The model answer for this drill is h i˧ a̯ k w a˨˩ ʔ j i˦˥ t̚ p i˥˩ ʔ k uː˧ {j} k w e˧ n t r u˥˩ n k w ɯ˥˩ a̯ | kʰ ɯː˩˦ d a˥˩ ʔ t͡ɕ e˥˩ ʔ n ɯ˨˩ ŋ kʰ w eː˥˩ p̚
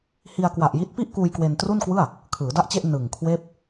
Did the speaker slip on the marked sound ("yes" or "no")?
no